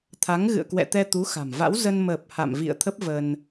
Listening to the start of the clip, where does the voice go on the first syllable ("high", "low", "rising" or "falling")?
rising